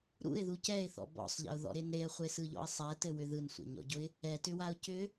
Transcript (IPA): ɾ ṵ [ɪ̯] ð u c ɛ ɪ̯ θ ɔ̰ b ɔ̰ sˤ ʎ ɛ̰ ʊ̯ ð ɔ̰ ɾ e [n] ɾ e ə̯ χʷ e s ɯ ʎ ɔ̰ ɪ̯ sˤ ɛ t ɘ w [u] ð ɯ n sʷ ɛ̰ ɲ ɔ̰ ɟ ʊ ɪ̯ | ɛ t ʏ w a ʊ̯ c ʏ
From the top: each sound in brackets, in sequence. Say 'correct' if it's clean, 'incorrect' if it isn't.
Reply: correct, correct, incorrect

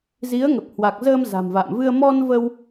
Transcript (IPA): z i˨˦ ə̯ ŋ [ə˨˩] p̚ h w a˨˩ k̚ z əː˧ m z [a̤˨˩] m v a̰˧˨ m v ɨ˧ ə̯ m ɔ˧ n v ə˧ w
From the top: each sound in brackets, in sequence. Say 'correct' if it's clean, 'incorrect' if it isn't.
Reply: correct, correct

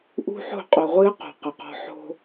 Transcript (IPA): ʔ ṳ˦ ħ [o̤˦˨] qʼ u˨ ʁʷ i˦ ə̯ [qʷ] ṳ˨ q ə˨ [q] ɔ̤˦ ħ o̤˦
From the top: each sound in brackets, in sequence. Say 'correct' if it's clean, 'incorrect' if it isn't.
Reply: correct, incorrect, correct

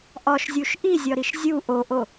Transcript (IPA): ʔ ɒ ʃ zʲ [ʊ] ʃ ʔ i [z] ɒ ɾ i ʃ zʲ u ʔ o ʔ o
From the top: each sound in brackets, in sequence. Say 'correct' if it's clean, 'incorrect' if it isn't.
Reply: incorrect, incorrect

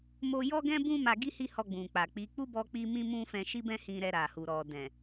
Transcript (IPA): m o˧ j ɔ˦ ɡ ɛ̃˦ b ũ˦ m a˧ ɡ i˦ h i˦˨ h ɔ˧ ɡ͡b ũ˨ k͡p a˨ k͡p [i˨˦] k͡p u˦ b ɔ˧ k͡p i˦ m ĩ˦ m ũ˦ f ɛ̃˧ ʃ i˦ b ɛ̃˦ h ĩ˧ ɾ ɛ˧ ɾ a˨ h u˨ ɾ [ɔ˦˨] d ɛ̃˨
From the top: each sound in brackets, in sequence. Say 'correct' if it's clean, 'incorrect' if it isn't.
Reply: correct, incorrect

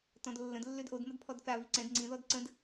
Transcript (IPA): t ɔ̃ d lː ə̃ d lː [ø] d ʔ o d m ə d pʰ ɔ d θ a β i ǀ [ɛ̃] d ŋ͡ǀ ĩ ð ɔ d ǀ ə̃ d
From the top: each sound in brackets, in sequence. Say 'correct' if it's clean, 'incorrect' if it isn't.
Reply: correct, correct

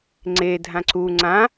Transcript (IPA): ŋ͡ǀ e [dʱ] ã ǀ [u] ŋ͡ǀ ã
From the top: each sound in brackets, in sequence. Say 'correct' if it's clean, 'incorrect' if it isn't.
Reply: correct, correct

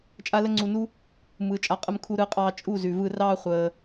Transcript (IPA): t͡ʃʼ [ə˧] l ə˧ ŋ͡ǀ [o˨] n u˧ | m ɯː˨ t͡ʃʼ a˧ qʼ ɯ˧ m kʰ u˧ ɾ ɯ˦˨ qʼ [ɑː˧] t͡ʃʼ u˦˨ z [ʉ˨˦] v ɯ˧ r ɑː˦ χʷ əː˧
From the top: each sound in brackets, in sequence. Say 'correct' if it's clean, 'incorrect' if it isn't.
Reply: incorrect, incorrect, correct, incorrect

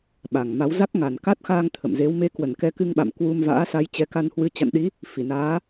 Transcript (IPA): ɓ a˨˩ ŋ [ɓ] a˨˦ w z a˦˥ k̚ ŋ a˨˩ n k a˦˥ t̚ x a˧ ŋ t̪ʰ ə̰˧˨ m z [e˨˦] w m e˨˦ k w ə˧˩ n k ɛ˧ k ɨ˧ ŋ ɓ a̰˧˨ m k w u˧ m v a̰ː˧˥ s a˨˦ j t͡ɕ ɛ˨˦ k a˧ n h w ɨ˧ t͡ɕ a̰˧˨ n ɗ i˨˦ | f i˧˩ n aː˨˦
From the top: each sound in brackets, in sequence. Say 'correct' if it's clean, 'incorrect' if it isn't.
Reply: incorrect, correct

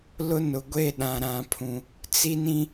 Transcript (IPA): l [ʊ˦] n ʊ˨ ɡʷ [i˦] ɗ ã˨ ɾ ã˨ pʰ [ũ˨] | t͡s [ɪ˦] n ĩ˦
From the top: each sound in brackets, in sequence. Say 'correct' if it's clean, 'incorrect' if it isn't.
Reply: correct, incorrect, correct, incorrect

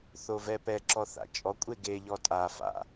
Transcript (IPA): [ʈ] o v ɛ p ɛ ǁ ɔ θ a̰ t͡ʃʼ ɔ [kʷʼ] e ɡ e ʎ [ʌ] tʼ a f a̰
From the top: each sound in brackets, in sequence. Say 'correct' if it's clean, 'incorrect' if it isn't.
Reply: incorrect, correct, incorrect

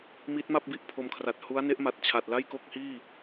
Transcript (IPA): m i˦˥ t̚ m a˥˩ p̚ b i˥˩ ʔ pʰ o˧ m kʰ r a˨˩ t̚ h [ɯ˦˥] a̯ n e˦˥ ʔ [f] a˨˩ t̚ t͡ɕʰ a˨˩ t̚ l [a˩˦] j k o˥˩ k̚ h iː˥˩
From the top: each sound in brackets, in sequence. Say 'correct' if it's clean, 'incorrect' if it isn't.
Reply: incorrect, incorrect, incorrect

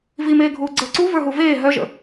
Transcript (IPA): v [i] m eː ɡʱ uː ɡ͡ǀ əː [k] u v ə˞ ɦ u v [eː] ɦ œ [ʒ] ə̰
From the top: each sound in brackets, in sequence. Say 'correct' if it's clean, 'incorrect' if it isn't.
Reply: correct, incorrect, correct, correct

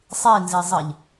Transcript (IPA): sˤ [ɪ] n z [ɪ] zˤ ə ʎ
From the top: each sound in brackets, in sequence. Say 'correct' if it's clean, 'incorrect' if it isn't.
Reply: incorrect, incorrect

